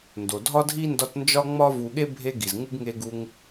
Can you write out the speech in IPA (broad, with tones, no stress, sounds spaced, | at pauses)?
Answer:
n d o˩ dʱ ɒ˥ dʱ i˥ n d ɒ˦ t n d͡ʒ ɒ˥ ŋ͡m ɒ˥ v u˨ ɠ e˥ bʱ e˦ ɡ i˩ z ŋ u˥ ɡ ŋ e˦ ɡ u˦ ŋ